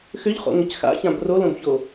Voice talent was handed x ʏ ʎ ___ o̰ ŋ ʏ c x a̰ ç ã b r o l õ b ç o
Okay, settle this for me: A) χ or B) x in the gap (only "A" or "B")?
A